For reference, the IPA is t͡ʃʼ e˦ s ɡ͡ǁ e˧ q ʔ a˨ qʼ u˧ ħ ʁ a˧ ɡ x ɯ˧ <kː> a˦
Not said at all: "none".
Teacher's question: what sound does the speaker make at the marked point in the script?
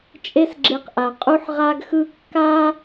kː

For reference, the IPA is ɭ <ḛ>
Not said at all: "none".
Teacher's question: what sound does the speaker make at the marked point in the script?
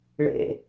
ḛ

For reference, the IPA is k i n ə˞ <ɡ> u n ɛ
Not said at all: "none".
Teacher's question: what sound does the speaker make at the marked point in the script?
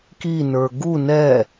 ɡ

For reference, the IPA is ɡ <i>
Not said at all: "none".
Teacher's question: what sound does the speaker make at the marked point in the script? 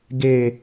e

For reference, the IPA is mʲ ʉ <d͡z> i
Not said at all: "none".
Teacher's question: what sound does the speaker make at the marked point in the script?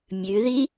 ð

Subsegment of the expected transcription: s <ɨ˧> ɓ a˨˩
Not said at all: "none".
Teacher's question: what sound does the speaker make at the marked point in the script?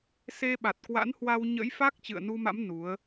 e˧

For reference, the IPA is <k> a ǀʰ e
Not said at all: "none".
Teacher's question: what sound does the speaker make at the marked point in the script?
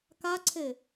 k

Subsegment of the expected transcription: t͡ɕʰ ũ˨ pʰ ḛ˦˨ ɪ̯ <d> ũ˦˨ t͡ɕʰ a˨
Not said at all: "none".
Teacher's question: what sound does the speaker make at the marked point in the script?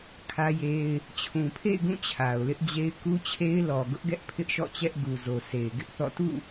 ɡ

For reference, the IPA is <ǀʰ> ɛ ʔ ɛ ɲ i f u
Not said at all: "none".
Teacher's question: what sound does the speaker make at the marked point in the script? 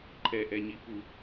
ǃʰ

